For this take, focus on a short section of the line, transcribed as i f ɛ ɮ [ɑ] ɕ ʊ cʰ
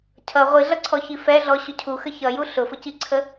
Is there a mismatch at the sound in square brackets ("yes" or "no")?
yes